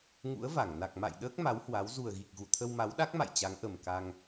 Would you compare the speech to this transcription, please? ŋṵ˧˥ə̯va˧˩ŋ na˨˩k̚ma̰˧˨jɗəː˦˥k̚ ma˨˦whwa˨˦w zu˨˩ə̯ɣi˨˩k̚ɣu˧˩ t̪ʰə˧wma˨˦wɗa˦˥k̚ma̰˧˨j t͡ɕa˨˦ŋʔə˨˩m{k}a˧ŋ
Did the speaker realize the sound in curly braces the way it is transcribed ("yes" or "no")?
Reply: yes